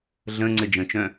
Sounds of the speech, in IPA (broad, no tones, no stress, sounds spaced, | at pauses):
ɮ ə̃ ŋ͡ǀ ɘ d͡ʒ ə̃ t͡ʃ œ̃